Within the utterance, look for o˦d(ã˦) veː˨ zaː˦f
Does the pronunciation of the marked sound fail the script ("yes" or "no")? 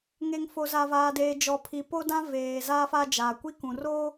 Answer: no